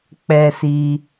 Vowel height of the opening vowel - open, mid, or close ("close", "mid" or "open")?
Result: mid